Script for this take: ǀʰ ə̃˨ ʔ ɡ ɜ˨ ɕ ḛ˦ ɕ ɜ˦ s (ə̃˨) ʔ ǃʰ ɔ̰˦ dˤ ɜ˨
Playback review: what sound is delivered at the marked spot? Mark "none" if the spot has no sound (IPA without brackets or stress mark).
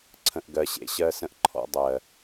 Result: ə̃˦